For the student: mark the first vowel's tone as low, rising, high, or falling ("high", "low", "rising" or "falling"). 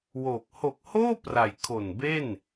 low